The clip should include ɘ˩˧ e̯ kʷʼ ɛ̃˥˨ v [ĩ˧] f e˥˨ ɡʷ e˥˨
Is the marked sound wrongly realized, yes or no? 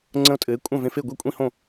yes